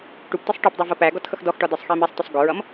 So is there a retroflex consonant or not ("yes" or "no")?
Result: yes